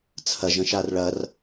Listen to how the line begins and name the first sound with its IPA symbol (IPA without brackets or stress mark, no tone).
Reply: t͡sʰ